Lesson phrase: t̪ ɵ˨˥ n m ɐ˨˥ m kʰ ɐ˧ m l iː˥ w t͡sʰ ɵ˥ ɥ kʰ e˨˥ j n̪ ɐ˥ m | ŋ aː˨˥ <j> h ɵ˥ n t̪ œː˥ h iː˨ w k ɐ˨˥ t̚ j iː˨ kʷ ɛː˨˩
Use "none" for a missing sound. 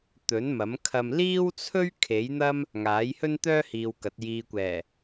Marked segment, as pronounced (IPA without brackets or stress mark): j